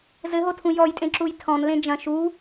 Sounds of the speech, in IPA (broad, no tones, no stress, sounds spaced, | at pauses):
z ɘ ɦ o tʰ ũ j ɔ j tʼ ẽ ǁ u j tʰ ɔ̃ n l ẽ d͡ʒ ɐ̃ ʃ u